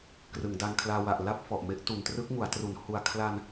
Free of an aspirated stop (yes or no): no